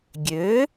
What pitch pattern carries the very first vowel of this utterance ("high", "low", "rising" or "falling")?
rising